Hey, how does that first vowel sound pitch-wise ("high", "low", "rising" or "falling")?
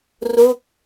falling